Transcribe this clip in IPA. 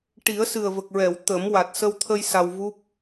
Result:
ʈ i˨˩˦ ə̯ s ɨ˨˩ ə̯ v ə˨˩ k̚ ɹ ɛ˨˩˨ w t̪ ə˨˩˦ m w a˨˩ t̚ s ə˧ w t̪ʰ ə˧ j s a˧ w v u˦˥ p̚

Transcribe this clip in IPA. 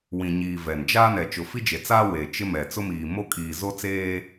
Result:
w ĩ˨ ɲ iː˨ v ɛ˨ n d͡ʒ a˦ n ɛ˨ t͡ʃ ʊ˨ f i˦ d͡ʒ e˨ t͡s aː˦ w e˨ t͡ʃ ɪ˦ m ɛ˨ t͡s ʊ˦ m iː˨ m o˦ kʼ iː˨ z o˦ t͡s eː˦

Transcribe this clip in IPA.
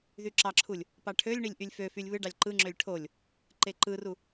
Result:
ð y ǁ ɑ ǁʰ u lʲ | p ɑ ʈʰ ø lʲ ɳ i lʲ ʔ y lʲ f ø f y lʲ β ɯ ɖ ɑ lʲ ǃ ɯ ŋ͡ǁ ø lʲ ʈʰ o lʲ | ǃ e ǃ ɯ r u

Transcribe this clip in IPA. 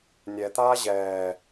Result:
nʲ ɛ t̪ aː ʑ ɛː

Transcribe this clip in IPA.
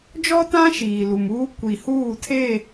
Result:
d͡ʒ ɔ˦ t ã˦ ʃ iː˨ l u˨ m uː˦ kʷ i˨ h uː˦˨ tʰ e˦˨

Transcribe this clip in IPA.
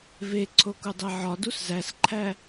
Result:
v e ǀʰ o k u dˤ e ʕ ɒ d u s z æ s ǃʰ æ

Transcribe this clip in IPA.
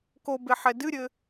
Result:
k o b e ħ ɛ d ɨ ɾʲ ɘ

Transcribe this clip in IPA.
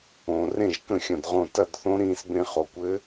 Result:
õ˩ r ẽ˥˩ ʒ k ə̃˥˩ xʲ ɐ̃˧˩ d ʁ õ˧˩ t ɐ˥˩ d θ õ˧˥ ɾ ĩː˧ s b ẽ˧ χ o˩ kʷ ɘ˧˥

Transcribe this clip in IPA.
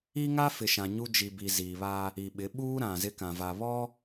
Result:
i˦ ŋ a˦ f ɪ˨ ʃ ã˨ ɲ u˦ d͡ʒ i˨ b i˨ z iː˨ β a˦ | i˨ ɓ ɪ˨˦ ɓ uː˦ ɾ ã˨ z ɪ˦ k ã˨ v a˨ β ɔ˦

